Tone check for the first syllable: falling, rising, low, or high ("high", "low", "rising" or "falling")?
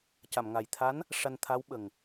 low